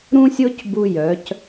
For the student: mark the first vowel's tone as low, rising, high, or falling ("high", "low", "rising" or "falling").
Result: high